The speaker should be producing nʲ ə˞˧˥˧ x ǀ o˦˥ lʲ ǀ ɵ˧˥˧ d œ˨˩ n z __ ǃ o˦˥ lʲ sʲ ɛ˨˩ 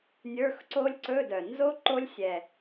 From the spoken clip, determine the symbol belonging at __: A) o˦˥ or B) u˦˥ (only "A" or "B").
A